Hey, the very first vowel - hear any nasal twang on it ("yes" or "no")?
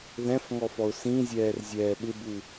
yes